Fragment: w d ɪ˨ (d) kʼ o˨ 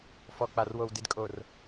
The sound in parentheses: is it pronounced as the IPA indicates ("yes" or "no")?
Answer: yes